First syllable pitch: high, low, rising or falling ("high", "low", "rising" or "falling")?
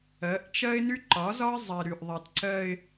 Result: rising